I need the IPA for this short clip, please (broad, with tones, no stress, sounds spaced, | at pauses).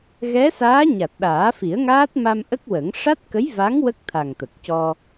ɣ ɛ˧˥ s aː˧˥ ɲ a˨˩ t̚ ɗ aː˨˩˦ f i˨˩˦ ə̯ ŋ aː˦˥ t̚ m a˧ m ʔ ə˦˥ k̚ w ə˨˩˦ ŋ ʂ a˦˥ t̚ k ə˧˥ j v a˧˥ ŋ w ə˦˥ k̚ t̪ʰ a˨˩ ŋ t̪ ə˨˩ k̚ c ɔ˧